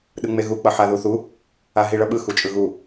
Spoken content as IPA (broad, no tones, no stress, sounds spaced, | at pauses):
ɗ ɯ ŋ͡m e ɣ u k͡p ʌ ħ a ð u θ u | a ɦ i ɭ ʌ ɓ ɯ x u t͡ʃʼ ɯ ɣ u